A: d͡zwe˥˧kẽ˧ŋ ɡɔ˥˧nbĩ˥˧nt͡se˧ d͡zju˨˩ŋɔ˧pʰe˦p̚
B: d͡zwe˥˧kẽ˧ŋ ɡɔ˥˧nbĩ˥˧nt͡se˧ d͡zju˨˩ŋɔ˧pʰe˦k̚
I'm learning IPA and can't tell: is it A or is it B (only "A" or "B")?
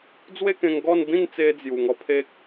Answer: B